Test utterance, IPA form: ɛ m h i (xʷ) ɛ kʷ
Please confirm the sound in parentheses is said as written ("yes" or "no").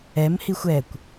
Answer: yes